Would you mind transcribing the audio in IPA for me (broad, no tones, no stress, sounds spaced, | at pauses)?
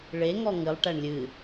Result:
ɭ e ŋ ɔ ŋ ɨ lˠ ʈ æ ɳ lʲ ɨ